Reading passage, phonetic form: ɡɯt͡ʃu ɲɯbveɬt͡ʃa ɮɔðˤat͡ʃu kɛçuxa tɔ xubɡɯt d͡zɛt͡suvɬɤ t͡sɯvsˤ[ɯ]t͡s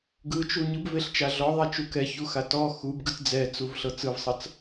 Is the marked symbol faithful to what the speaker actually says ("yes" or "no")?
no